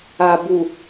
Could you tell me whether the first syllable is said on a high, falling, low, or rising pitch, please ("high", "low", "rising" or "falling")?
low